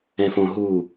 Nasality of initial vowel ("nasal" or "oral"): nasal